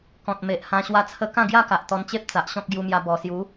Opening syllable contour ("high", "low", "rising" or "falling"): low